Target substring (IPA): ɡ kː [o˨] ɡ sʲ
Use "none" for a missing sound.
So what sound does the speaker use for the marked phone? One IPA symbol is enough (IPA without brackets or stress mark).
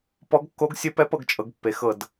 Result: o˧˥